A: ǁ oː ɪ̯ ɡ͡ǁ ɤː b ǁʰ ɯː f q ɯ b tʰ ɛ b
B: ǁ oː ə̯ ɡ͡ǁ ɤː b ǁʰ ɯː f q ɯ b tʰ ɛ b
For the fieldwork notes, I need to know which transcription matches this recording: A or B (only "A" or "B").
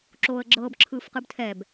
B